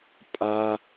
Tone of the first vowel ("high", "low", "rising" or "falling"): high